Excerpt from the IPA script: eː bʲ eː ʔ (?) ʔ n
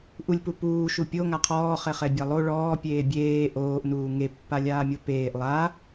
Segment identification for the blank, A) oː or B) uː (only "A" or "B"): A